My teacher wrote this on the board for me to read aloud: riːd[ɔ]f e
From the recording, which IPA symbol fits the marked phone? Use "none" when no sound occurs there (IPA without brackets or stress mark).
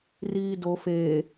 o